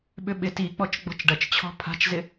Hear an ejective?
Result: no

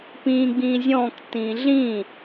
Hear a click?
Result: no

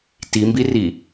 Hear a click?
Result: no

